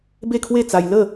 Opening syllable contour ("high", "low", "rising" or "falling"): falling